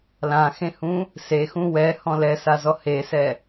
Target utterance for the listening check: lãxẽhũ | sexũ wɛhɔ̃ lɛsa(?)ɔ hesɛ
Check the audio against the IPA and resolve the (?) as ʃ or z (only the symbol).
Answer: z